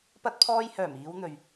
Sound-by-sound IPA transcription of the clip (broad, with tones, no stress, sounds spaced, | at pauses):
p ɐ˧ t̚ pʰ ɔː˧ j h œː˨˩ m iː˨˧ w n̪ ɵ˨ ɥ